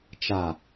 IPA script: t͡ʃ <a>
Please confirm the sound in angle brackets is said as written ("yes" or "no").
yes